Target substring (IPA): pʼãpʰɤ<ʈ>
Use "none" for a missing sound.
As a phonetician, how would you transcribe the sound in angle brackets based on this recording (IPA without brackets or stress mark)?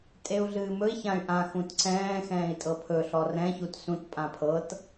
t